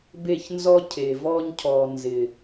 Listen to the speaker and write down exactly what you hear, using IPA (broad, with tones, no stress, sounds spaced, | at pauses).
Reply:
b e˦˨ ç n z ɔ˦ cʰ eː˨ v ɔː˧ ɲ cʰ ɔː˨ n z ɪ˨